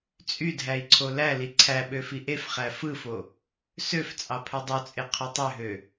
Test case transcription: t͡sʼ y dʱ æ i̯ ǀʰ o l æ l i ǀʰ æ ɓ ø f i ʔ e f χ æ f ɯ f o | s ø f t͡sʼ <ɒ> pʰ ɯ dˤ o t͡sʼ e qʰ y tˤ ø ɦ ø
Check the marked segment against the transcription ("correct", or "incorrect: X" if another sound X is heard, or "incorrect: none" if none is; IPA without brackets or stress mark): incorrect: ɑ